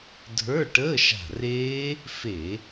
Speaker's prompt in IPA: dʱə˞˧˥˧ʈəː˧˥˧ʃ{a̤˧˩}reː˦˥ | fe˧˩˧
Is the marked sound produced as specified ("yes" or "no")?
yes